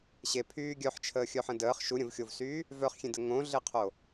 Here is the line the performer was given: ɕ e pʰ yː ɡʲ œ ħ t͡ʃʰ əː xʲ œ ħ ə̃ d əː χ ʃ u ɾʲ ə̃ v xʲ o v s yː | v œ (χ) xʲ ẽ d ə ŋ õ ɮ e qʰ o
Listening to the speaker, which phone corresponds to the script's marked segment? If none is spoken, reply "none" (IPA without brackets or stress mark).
χ